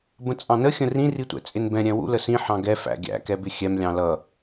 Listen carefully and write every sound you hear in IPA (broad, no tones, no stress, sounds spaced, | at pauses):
b ə̃ t͡sʼ ɑ̃ n ə xʲ ə̃ r ĩ r i tʷ ɛ̰ t͡sʼ ɪ n b ɛ̃ ɾʲ ɛ̃ w ṵ l ə s ĩ ħ ɑ̃ ɡ ɛ f æ̰ ɡʲ æ̰ k ɛ b ɪ xʲ ɛ m lʲ ɑ̃ l ʌ